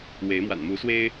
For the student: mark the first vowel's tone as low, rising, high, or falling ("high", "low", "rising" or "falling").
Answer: rising